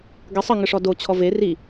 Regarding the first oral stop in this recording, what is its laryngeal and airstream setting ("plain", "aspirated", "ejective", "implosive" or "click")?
plain